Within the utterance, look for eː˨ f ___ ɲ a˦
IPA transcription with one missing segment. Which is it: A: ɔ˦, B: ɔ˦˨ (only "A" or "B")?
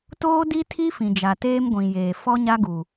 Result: A